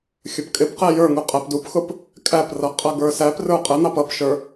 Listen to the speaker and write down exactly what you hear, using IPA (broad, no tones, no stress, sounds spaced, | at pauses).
xʲ ʊ p kʼ ɪ p q ɛ j ə˞ ŋ u qʼ æ p d u p x ʊ p | kʼ æ p r ʌ qʼ ʌ ɡ ə˞ s æ p r ə˞ qʼ ə n̪ ɑ p ʌ p ʃ ə˞